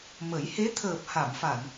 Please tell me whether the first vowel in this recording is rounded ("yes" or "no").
no